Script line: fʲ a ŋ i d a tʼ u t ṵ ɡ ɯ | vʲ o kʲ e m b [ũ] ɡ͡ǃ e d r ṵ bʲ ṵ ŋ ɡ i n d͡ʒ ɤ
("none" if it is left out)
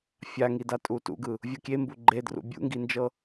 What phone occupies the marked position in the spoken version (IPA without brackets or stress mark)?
u